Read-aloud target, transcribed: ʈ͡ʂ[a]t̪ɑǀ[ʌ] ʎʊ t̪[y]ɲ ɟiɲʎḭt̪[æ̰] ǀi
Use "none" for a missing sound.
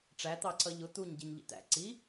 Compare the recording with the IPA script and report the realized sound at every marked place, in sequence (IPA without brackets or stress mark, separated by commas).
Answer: æ, ʌ, u, æ̰